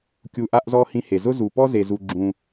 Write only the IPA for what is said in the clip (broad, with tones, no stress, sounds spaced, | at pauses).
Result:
kʲ u˧ ʔ a˥ ʔ z ɔ˥ h ĩ˧ h e˩ z ʊ˥ z u˩ p ɔ˥ z e˩ z u˩ ɡ͡ǁ ũ˩